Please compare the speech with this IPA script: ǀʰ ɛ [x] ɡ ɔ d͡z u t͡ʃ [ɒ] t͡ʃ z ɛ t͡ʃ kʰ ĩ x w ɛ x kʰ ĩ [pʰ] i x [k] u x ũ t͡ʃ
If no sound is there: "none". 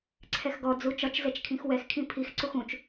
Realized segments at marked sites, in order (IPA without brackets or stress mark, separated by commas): x, ɒ, pʰ, ǀ